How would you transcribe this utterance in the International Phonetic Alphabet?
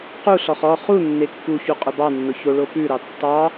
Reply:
quɬɔχ ɔ χu nːekːuçu qʼʊbɑnːʊ çoɭopʉɾɑ tːɑ

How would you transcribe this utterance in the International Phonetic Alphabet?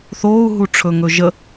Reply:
θoːu̯ɦu ʈ͡ʂʰɵŋɵʒə

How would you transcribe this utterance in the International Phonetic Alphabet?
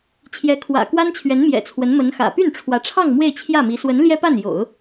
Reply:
t͡ɕʰjɛ˧˥ kʰwä̰˨˩kwa˥nt͡ɕʰɥɛ˧˥nmjɛ̰˨˩ t͡sʰwə˧˥nmə˧˥nxä̰˨˩ py˥˩nʈ͡ʂʰwä˧˥ʈ͡ʂʰɑ˥˧ŋ mwe˥˧ɪ̯t͡ɕʰjä˥˩mi˧˥ swə˧˥n ljɛ˥pa˥˩njo̰˨˩˦ʊ̯

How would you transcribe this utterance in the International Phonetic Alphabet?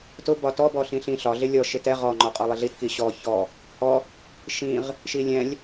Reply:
tʊ bɒtɔ bɔɬĩɬĩ ɬɒ ɮɪlʲɔ ʃɪtɛ ʁɔ ŋ͡ǃɒqʼɔlˠɪɮit kiɕɔ çɔ | hɔ | ʃĩʁ | ʃilʲɛ̃lʲ

